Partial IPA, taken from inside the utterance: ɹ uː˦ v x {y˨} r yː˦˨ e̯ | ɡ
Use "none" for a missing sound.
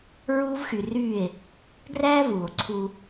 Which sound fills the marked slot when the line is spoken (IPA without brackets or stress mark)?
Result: y˨